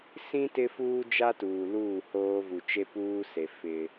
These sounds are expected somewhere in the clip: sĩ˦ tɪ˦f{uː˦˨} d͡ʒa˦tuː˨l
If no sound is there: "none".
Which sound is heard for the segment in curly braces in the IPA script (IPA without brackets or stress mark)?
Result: uː˦